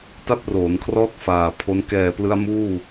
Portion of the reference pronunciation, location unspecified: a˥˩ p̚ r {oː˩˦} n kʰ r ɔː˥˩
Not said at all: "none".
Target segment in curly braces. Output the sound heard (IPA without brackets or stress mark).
oː˩˦